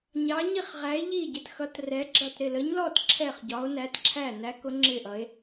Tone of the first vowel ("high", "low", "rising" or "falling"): rising